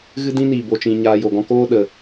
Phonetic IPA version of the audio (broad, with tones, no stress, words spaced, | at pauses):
ɣɨ˦dĩ˦ niː˨ bo˧t͡ʃĩ˧ ɲaː˧jo˨ɡɔ̃˦ koː˦ɗə˨